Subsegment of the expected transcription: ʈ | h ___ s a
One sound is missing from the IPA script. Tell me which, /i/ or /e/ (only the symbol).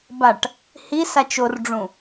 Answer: i